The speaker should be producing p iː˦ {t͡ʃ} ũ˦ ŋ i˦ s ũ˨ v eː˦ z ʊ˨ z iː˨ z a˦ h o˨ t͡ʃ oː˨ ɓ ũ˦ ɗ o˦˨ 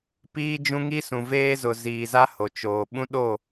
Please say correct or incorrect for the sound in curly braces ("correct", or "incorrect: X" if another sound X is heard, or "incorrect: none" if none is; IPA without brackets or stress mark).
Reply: incorrect: d͡ʒ